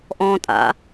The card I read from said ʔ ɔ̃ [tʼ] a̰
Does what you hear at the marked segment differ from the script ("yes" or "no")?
no